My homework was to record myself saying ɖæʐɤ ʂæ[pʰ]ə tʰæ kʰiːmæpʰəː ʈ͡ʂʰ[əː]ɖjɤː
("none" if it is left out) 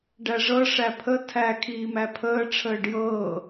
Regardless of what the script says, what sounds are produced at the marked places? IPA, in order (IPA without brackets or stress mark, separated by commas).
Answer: pʰ, əː